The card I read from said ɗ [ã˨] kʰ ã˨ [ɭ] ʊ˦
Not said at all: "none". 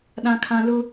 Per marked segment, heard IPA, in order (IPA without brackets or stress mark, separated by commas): ã˨, l